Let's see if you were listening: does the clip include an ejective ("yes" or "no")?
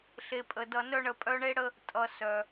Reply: yes